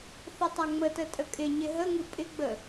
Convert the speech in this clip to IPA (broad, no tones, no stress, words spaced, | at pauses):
θɪtˤaŋ͡mətə tʼəkʼɪɲɪ ɦəŋɨ pʼɪɡ͡bə